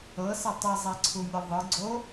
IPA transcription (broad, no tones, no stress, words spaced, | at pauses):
ɤsɛ tˤizˤɛǀʰumʲɯ ðˤɯ ɡ͡ǀo